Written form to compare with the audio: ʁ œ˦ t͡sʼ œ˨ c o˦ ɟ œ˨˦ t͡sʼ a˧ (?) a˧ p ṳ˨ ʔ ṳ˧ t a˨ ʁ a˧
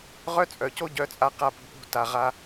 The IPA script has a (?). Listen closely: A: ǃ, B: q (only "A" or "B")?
B